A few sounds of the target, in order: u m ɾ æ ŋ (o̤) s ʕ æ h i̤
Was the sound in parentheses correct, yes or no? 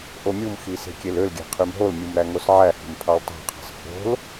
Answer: no